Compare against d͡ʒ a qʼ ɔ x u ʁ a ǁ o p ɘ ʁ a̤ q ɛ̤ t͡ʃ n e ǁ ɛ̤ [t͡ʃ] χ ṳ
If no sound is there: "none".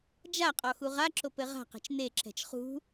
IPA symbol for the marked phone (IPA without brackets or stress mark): t͡ʃ